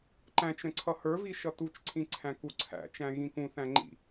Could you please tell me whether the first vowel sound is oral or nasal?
nasal